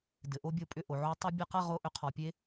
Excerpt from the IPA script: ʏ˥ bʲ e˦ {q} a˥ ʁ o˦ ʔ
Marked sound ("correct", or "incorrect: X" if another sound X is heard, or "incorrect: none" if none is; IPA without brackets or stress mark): correct